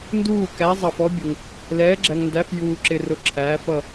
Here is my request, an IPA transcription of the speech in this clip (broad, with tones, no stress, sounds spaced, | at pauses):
n d uː˦˨ k æ˨˦ zˤ ɑ˨ f ɔ˨˦ bʲ ʊ˨ ŋ | l ɛː˨˦ ɡ͡ǁ æ˨ ŋ n d æ˨˦ f j uː˨ ǁ ɪ˨ r ʊ˨˦ ǁʰ æː˨˦ f ʌ˦˨